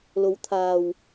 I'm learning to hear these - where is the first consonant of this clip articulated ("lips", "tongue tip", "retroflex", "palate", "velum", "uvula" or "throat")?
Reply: tongue tip